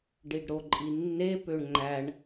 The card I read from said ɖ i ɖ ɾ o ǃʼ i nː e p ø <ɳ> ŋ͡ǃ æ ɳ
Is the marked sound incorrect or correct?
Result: correct